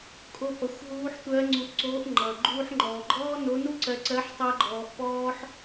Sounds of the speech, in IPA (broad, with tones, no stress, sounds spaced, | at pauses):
kʼ o˧ p ʌ˩˧ xʷ ɦ uː˧˥ ħ tʷ ɜ˧˥ ŋ͡ǀ u˧ ʔ ǀ oː˧˥ ʔ ŋ͡ǃ ʌ˩ ɡ͡ǃ uː˧ ħ ŋ͡ǃ ɔː˩ ɡ͡ǃ ɔː˥ n o˧˥ n u˥ ǀ ɜ˧ ǀ ɜ˧˥ ħ tˤ ɜ˥ ɡ͡ǃ ɔː˧ ʔ p ɔː˥ ħ